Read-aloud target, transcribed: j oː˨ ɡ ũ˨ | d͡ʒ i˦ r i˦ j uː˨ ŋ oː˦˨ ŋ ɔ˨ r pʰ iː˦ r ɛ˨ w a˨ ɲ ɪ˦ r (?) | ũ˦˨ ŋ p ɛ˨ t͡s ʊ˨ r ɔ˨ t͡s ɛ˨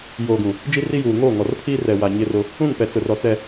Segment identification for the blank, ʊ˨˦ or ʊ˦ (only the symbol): ʊ˦